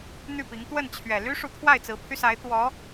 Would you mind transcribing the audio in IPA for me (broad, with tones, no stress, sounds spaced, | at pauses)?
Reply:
n̪ y˥˩ p i˧˥ ŋ t̪ w ə˥˩ n t͡ɕʰ ɥ ɛ˨˩ l y˥ ʂ u˧˥ t̪ʰ w a˥˩ ɪ̯ t͡s ɹ̩˧˥ pʰ y˧ s a˧˥ ɪ̯ t̪ w ɔ˧˥